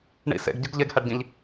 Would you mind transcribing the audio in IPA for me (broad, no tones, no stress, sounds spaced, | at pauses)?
ɳ ḭ s ḛ ɡ ɟ ɯ ɡ ʎ e ɡ h æ ɖ ɟ ĩ ʎ